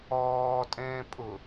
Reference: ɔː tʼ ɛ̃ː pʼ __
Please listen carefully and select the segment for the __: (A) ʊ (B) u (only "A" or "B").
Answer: A